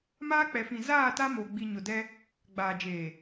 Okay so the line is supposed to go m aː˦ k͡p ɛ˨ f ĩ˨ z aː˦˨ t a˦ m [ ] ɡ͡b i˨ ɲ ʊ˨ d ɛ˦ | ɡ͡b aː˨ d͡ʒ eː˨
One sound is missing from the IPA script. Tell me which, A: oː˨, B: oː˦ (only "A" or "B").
A